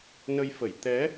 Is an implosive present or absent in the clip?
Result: absent